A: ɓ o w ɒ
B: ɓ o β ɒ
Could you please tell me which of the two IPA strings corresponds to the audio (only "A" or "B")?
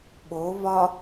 B